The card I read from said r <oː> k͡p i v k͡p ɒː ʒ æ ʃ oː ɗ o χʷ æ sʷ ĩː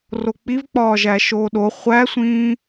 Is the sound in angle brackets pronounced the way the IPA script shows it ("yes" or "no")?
no